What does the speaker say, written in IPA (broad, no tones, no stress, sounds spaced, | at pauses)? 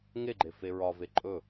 ŋ e ɡ͡ǃ e f e ɹ ɒ v e ǃʼ ɵ